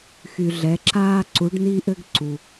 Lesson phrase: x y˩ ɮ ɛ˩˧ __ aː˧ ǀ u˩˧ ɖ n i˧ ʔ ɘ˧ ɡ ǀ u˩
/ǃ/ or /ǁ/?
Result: ǁ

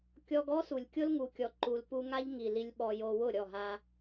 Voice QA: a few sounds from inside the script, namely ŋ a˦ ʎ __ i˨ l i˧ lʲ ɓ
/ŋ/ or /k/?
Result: ŋ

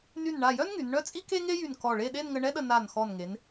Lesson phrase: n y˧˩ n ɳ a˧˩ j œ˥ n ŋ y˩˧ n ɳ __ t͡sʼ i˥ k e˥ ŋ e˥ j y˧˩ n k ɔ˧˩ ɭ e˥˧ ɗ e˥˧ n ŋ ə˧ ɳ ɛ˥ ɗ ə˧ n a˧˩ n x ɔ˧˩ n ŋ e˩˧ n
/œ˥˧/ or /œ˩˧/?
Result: œ˥˧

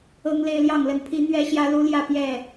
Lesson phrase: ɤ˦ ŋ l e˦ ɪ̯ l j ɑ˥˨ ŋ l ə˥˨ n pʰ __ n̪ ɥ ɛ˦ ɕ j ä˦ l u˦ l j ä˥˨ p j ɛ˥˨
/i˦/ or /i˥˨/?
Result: i˦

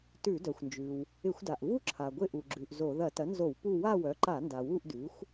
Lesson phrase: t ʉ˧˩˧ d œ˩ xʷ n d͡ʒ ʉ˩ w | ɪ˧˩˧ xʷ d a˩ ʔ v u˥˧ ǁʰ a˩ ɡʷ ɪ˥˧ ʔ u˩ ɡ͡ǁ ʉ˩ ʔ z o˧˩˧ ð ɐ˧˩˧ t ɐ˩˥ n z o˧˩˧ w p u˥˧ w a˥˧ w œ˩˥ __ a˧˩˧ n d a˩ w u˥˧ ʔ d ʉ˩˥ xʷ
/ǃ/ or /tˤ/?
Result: ǃ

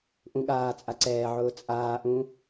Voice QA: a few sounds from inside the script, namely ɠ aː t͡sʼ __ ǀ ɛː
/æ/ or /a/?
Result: a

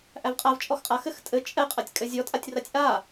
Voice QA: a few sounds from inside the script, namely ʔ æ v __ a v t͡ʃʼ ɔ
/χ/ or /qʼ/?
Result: qʼ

